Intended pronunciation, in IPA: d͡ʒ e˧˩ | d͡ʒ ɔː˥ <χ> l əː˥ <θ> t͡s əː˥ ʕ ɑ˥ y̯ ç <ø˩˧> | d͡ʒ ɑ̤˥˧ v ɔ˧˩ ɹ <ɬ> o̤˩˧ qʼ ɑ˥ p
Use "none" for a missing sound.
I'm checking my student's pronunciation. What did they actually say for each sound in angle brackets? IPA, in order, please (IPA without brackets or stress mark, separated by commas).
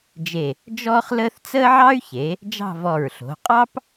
χ, θ, e˩˧, ɬ